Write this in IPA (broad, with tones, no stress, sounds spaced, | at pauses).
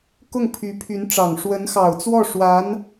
k ʊ˥˩ ŋ pʰ y˧˥ pʰ y˧˥ n ʈ͡ʂ ɑ˨˩ ŋ ʂ w ə˧˥ n x ɑ˨˩ ʊ̯ t͡s w ɔ˥˩ ʂ w a˧˥ n